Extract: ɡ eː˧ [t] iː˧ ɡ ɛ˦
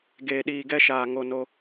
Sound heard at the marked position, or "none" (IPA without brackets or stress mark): ɗ